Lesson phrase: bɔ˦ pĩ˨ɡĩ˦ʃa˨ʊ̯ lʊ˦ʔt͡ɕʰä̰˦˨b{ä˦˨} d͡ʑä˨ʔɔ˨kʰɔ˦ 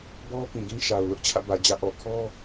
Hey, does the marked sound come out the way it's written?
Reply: no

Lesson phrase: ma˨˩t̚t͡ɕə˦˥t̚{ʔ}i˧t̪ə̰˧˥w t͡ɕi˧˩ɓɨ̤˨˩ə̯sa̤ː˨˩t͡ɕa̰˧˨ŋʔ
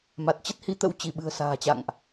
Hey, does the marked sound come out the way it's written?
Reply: no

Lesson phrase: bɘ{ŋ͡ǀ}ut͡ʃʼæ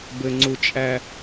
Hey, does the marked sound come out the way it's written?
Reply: yes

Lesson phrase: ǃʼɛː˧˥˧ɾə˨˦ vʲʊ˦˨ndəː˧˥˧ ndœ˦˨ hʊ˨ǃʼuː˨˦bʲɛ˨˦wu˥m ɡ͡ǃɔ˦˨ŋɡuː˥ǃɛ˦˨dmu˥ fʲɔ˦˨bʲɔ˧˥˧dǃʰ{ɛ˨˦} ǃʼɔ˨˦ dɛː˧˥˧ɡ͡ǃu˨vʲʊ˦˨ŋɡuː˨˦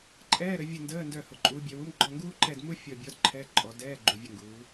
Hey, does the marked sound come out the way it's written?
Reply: no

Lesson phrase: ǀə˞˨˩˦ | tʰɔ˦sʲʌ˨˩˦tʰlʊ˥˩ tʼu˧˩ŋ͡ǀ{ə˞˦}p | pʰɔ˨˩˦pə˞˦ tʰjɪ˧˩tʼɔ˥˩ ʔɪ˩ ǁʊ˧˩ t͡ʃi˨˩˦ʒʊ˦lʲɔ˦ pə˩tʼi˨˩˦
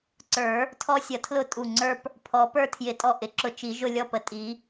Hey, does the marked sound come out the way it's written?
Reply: yes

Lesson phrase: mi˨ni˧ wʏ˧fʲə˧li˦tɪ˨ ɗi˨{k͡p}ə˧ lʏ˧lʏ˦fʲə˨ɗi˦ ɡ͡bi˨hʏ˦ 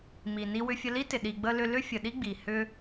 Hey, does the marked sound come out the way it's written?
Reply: no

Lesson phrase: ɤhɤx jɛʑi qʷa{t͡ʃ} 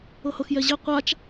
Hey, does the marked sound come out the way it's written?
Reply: yes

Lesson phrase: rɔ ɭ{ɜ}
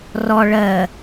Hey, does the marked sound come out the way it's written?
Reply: yes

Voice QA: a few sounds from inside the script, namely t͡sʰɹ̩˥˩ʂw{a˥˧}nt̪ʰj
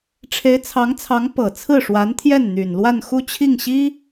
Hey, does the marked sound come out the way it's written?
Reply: no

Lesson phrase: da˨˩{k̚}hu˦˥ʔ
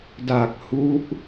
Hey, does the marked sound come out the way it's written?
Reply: yes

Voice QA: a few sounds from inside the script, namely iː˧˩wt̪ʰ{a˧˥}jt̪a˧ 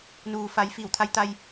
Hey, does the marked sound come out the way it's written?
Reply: yes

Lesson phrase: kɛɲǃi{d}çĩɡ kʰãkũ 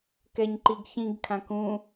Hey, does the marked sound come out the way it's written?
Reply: no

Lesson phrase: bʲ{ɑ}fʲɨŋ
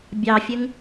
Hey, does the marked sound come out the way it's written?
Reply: yes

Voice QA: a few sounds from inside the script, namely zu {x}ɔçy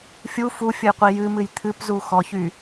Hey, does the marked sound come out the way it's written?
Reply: yes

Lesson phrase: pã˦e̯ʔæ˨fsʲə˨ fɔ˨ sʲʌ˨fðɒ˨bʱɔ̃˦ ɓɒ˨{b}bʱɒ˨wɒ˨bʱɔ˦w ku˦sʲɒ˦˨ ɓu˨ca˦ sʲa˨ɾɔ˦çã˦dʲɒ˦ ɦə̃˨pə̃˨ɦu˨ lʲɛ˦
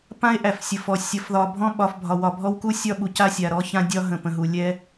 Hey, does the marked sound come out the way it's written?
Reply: no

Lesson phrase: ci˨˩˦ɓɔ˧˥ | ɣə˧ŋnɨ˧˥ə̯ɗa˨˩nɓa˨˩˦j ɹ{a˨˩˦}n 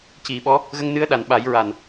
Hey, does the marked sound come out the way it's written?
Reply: no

